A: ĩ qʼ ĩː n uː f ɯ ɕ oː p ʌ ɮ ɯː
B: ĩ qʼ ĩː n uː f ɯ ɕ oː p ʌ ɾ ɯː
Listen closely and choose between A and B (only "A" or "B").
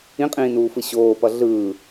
A